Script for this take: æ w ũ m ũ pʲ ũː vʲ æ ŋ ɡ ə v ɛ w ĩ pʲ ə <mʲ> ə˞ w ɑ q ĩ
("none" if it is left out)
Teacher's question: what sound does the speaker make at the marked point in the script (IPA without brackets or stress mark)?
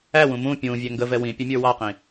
mʲ